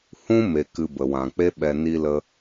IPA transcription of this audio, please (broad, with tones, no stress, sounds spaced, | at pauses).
h ũ˦ m e˨ k ɨ˨ b ə˨ w ã˨ k͡p e˦ ɓ ɛ˧ n i˧ l ə˧